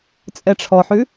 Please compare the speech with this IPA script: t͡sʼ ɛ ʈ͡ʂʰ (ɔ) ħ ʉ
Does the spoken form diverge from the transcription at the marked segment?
no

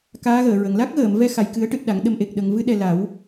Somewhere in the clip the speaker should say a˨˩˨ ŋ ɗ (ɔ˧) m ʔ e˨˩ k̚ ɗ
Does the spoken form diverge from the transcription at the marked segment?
yes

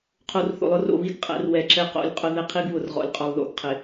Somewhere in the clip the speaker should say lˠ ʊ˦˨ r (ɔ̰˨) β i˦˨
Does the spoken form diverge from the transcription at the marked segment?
yes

